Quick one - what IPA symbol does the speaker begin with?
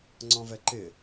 ŋ͡ǀ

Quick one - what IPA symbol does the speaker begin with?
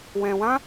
w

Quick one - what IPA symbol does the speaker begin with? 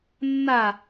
nː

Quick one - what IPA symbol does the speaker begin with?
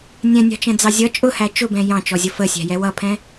nʲ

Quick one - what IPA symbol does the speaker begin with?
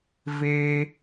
v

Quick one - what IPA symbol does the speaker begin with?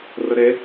r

